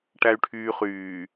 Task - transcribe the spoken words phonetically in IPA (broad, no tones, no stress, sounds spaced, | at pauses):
ʈ æ y̯ ʈʰ yː χ yː